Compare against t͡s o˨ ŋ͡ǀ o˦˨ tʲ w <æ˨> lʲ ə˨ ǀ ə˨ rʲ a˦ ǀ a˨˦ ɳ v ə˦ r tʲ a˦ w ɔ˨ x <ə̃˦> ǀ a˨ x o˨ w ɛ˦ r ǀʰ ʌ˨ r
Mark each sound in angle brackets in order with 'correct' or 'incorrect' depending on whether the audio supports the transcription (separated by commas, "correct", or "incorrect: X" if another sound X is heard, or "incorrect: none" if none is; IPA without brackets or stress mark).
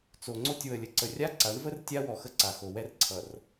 incorrect: ə˨, incorrect: ə˦